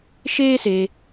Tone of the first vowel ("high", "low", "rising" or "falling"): high